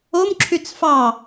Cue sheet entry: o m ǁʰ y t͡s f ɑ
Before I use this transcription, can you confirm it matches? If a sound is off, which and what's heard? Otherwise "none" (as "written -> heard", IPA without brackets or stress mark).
none